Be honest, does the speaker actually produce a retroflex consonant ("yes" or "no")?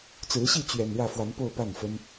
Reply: yes